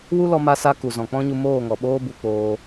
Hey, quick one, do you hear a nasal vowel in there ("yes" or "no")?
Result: yes